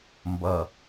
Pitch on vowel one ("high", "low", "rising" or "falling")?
low